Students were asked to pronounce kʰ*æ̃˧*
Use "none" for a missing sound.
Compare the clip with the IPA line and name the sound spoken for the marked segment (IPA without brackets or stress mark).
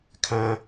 æ̃˧